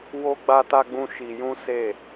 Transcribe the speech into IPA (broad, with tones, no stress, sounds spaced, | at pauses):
w o˦ ɡ͡b a˦ t a˦ ɡ͡b ũ˦ ʃ i˧ j ũ˦ s e˦˨